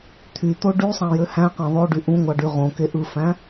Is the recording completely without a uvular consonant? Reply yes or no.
no